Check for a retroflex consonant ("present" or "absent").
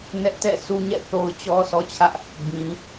absent